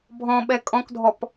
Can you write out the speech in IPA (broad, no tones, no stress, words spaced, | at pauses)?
bʱɔ̃ɓɛ kʼɔ̃kdʱɔp